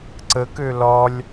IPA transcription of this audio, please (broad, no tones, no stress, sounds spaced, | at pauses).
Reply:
ǀ ə k ø l ɒ lʲ